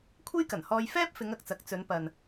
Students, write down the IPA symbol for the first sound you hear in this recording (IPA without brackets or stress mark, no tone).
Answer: kʷʰ